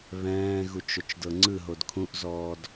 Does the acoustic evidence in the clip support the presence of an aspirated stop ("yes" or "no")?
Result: yes